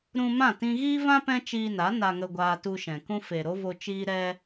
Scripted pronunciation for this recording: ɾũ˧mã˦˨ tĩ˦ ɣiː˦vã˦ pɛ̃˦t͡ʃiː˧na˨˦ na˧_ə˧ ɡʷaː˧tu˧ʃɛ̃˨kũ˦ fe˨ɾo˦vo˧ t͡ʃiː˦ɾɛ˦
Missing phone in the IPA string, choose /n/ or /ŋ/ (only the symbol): ŋ